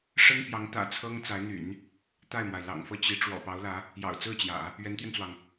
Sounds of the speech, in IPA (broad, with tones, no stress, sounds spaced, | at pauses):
ʂ ə˥ n p j ɑ˧˥ ŋ t̪ ä̰˨˩ t͡sʰ ɤ˥ ŋ t͡s a˧˥ ɪ̯ n̪ y̰˨˩˦ n | t̪ a˥˩ ɪ̯ m w a˩ ɪ̯ l ɑ̰˨˩ ŋ f ɤ˥˩ t͡ɕ i˧˥ ʈ͡ʂ w ɔ̰˨˩ p ɑ˧˥ ʊ̯ l ä˧˥ | j ɑ̰˨˩ ʊ̯ t͡s ɹ̩˥˩ t͡ɕ j ä̰˨˩˦ | ɥ ɛ˧˥ n t̪ ɥ ɛ˧ n t͡s w ɑ˩ ŋ